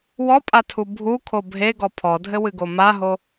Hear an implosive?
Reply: no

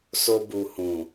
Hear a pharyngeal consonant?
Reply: no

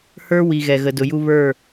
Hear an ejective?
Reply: no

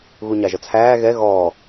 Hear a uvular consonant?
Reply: no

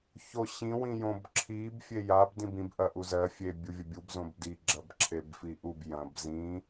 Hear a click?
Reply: yes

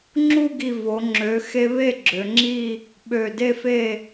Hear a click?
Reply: yes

